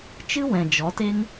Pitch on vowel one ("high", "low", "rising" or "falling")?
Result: high